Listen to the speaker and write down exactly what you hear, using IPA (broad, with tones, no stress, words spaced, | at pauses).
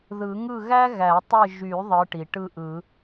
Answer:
ðɯ˨˩˦ŋɯ˥˨ ɣæ˥ ɣæ˨˩˦ tˤɯ˥˨ ʒy˨˩˦ ðˤɯ˨˦ʈi˩ ʈɯ˥˨ʔɯ˨˩˦